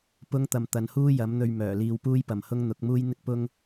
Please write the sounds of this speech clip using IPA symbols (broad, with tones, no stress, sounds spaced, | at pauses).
p ʊ˥ ŋ t̪ ɐ˧ m t̪ ɐ˨˧ n h uː˥ j ɐ˨˥ m n̪ ɵ˧ ɥ m œː˨˩ l iː˧ w p uː˥ j p ɐ˨ m h ʊ˥ ŋ n̪ ʊ˨˥ k̚ m uː˥ j n̪ ɪ˥ k̚ p ʊ˥ ŋ